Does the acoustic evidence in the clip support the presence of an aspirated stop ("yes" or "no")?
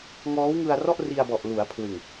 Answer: yes